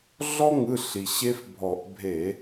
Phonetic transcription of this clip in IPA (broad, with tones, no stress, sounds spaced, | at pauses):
ɮ ɔ˦ ŋ ɯ˩˧˩ ɬ i˩ ɕ e˦ f bʱ ɔ˧˩˧ ʔ bʱ e˧˩˧